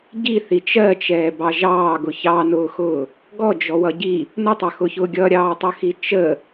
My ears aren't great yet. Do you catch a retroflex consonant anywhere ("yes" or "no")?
no